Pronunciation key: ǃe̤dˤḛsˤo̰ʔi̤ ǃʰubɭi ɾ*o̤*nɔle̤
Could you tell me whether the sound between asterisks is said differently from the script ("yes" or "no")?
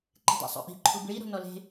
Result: no